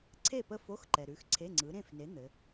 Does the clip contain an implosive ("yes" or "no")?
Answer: no